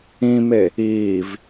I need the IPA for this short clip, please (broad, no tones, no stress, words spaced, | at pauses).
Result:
ĩme | iːv